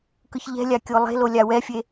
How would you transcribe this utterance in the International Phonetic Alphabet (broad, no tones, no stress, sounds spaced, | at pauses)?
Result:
k ɯ ç ʎ ɛ̤ lʲ a kʲ o lˠ e̤ l o lʲ a w ɛ fʲ e